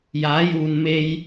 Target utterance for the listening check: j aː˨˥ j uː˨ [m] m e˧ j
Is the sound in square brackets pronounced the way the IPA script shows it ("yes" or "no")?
no